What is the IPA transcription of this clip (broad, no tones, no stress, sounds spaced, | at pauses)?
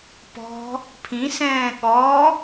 p ɔ̤ | pʰ ĩ s ɛ̃ː ɠ ɔ